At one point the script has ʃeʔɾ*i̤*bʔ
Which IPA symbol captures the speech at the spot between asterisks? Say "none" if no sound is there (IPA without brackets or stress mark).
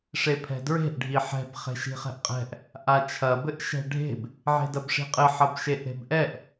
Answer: e̤